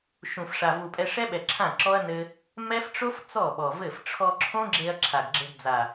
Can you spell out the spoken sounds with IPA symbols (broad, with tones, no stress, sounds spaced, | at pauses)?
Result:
ʃ ũ˨ f ʂ a˨ v u˨ pʼ ɛ˧ ʂ ɛ˦ ɓ ɛ˨ ǁʰ ã˦˨ ǁ ɔ˦ ɐ̯ n ɘ˧ | m ɛ˦ f ʈ͡ʂ o˦ f t͡s ɔ˦˨ ɓ ɔ˨ v ɘ˦˨ f ʈ͡ʂʰ ɔ˧ ǁʰ õ˦ ɡ͡ǁ e˧ ɐ̯ ǁʰ a˨ ɡ ɡ͡ǁ ɘ˧ ɡ d͡z a˨